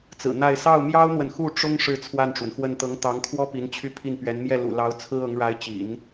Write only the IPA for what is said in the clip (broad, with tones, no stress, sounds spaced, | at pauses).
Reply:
t͡s ɹ̩˨˩ n̪ a˥˧ ɪ̯ s ɑ˥˩ ʊ̯ m j ɑ˥ ʊ̯ n̪ w ə˨ n x u˥˩ ʈ͡ʂ ʊ˥ ŋ ʂ ɻ̩˥˧ t͡sʰ w a˥˩ n ʈ͡ʂ w ə˩ n x w ə˥˩ n t̪ ɤ˧˥ ŋ t̪ ɑ˧˥ ŋ kʰ w ɔ˥ p i˧˥ n t͡ɕʰ y˥˧ pʰ i˥˩ n p ɥ ɛ˧˥ n m j ɛ˥˩ l ṵ˨˩ l ɑ˧˥ ʊ̯ t͡sʰ ɹ̩˥ ɤ˧˥ ŋ ɻ a˧˥ ɪ̯ t͡ɕ ḭ˨˩˦ n